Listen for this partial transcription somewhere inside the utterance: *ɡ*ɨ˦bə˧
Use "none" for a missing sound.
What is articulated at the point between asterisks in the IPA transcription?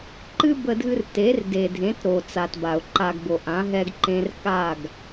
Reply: ǃ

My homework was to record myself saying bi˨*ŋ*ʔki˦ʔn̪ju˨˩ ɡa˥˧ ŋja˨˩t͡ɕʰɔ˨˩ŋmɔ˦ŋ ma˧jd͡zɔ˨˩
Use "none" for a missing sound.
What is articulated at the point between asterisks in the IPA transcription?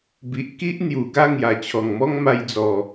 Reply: none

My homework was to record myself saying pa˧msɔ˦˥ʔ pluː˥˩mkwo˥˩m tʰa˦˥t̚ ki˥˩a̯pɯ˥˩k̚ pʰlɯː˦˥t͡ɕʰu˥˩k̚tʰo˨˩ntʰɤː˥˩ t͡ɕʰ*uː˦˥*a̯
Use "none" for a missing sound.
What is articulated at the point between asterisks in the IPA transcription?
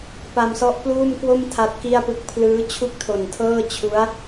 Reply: u˦˥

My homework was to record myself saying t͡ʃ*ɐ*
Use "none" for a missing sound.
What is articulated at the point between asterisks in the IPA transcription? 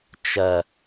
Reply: ɐ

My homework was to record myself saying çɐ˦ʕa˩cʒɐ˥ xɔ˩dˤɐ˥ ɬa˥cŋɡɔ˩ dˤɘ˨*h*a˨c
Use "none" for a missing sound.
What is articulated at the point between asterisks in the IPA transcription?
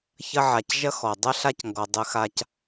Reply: x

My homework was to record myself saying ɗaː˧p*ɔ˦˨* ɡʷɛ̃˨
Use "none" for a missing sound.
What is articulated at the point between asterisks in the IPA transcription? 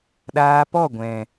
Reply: ɔ˦˨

